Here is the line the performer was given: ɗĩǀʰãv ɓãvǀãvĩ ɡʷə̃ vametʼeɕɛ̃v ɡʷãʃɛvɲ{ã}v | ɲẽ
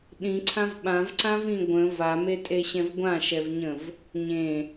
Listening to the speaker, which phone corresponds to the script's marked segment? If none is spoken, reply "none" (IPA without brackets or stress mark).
ə̃